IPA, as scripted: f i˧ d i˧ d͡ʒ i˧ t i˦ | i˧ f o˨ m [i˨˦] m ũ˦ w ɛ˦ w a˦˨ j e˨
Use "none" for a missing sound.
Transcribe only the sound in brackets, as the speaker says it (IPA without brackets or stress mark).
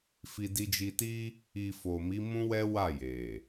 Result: i˨˦